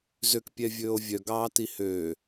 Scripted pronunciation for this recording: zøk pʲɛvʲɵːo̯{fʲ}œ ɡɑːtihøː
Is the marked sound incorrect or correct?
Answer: incorrect: vʲ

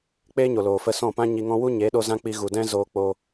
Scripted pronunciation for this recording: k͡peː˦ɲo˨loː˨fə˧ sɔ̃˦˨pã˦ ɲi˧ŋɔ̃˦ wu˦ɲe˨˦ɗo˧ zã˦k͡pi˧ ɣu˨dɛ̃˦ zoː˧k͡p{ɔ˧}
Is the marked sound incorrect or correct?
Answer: incorrect: o˧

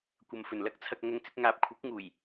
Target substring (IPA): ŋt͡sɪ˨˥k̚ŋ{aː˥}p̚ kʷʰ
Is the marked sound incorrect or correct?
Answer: incorrect: aː˨˥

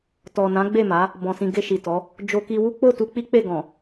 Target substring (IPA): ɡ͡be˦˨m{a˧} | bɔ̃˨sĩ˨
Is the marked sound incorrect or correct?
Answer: incorrect: a˨˦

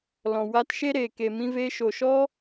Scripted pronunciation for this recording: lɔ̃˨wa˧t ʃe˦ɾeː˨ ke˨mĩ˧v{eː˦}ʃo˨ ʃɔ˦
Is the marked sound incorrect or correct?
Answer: incorrect: eː˧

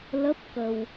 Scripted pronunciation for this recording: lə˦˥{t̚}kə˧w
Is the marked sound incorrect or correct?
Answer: incorrect: p̚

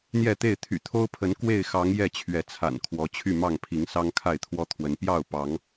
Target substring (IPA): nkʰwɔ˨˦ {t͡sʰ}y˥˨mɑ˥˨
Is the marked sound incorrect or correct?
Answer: incorrect: t͡ɕʰ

